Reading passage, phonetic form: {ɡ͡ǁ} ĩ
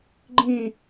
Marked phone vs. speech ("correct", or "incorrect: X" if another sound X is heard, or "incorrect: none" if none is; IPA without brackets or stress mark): incorrect: ɡ͡ǃ